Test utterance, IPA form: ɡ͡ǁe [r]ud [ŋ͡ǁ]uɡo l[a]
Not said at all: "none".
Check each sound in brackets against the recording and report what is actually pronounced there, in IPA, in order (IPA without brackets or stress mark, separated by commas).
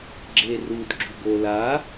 r, ɡ͡ǁ, a